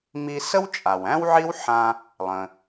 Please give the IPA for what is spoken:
mi˧sə˥w t͡ʃʼa˩wæ̃˥wʕi˥wħã˧ | lˠə̃˩

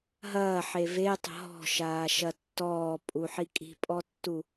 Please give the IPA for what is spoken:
ɦɐːħe vetˤə̤ ɦɔ̤ʃaːʃɐ tːɔːpʼuħi kʼi̤pʼɔtːu

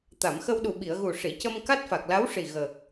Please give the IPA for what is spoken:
t̪a˨˩˨mxə˧wɗu˨˩ ɓi˨˩˨ə̯ɣu˨˩ ʂi˨˩˨cə˧m ka˦˥t̚fa˨˩k̚la˧˥wʂi˨˩ ɣəː˨˩k̚

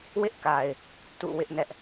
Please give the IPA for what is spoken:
wɪ˦ʔka˨ɪ̯ | tṵ˦˨ wɪ˦ʔnɛ˦ʔ

